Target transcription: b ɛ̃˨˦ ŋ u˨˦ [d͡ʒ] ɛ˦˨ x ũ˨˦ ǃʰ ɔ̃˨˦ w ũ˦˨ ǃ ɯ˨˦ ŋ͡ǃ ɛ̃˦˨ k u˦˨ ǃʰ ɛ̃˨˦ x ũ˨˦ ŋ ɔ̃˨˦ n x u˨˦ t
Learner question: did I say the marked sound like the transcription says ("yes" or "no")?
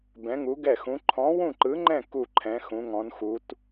no